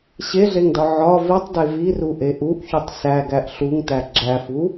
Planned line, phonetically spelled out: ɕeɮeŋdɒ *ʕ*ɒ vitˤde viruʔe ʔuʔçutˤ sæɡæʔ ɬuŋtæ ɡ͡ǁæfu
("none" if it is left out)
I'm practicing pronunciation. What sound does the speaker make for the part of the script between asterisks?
ʕ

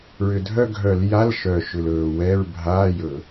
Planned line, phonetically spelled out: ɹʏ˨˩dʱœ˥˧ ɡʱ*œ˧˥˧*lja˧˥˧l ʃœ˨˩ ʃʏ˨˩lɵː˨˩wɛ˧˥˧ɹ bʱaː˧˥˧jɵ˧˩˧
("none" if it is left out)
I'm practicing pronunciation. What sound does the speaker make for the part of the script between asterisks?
œ˧˩˧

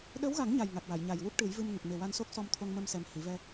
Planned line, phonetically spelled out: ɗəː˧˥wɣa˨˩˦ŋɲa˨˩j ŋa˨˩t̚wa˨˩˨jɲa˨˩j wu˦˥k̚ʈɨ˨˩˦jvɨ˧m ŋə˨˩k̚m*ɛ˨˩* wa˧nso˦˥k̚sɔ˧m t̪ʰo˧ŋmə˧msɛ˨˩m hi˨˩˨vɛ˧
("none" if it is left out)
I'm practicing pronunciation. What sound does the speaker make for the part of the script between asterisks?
e˨˩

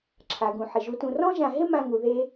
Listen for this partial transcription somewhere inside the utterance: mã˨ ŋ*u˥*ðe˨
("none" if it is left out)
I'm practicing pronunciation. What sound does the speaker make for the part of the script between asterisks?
u˩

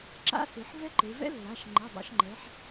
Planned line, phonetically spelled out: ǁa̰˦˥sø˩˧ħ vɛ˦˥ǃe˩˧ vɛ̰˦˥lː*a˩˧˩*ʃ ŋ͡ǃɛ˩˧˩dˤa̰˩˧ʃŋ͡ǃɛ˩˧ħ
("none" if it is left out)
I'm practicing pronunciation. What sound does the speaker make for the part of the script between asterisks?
a˩˧˩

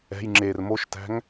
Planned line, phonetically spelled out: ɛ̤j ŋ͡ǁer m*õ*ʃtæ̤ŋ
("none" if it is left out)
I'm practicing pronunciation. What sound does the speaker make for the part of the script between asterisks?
o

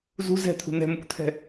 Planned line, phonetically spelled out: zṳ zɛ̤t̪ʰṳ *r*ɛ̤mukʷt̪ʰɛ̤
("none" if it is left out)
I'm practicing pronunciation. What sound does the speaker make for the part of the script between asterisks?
n̪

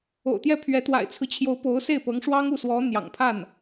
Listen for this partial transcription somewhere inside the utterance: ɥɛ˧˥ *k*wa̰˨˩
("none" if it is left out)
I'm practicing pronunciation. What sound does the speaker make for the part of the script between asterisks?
t̪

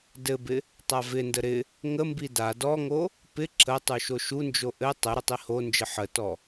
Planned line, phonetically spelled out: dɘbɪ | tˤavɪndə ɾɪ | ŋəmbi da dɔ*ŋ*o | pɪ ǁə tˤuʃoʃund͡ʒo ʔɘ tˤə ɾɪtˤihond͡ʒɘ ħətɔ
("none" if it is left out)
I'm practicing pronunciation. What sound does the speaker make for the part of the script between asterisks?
ŋ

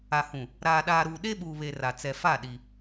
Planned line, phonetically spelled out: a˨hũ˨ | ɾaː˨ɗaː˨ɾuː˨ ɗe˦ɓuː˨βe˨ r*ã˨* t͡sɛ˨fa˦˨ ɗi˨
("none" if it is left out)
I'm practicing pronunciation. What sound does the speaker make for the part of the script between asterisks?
a˨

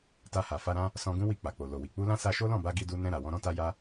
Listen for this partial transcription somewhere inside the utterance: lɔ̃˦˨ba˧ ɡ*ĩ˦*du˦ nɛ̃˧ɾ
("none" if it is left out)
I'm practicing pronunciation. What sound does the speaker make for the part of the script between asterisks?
i˦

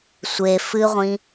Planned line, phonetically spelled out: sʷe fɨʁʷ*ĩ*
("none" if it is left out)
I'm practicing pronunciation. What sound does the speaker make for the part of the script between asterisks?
ĩ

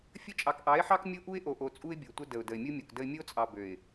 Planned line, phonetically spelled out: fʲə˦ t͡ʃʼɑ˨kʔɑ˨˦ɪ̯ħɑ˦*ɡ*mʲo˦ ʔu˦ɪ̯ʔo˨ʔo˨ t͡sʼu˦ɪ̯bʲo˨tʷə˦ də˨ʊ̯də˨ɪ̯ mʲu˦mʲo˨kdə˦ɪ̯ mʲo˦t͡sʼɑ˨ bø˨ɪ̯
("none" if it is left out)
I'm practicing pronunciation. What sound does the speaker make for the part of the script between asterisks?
k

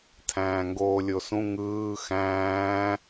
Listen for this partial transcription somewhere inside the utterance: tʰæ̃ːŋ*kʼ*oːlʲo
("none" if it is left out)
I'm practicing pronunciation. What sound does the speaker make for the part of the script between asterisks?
ɡ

